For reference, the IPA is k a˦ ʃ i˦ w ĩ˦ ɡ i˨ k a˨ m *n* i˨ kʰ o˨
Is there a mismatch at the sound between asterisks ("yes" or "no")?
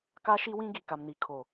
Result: no